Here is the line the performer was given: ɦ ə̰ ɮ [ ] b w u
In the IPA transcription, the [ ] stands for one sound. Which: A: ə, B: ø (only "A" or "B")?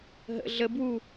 A